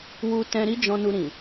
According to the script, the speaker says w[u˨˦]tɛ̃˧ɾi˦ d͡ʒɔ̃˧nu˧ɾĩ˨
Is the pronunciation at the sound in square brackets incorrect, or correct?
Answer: incorrect